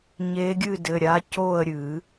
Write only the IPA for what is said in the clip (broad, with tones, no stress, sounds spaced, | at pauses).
ɲ e˧˥ ɡʲ ɨ˥˨ d ɘ˩˧˩ ɾʲ a˧˥ c o˥˨ ə̯ ɾʲ ɨ˨˩˦